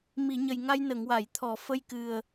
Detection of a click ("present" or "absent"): absent